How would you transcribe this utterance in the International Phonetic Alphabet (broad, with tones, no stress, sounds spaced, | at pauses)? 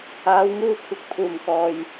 aː˨˧ w ŋ uː˧ kʷʰ ɪ˨ k̚ pʰ uː˨˩ m k ɔː˨ j